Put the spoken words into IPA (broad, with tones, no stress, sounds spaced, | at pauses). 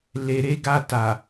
l e˨ ɾ e˧ ɡ a˧ t a˨